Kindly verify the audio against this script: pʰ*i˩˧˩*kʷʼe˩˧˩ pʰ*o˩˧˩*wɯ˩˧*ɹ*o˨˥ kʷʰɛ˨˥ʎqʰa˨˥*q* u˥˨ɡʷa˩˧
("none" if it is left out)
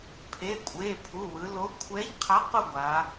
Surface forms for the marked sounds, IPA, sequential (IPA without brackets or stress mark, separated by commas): e˩˧˩, u˩˧˩, l, q